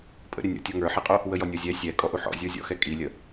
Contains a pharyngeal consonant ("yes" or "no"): yes